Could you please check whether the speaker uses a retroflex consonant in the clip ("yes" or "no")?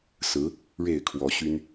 yes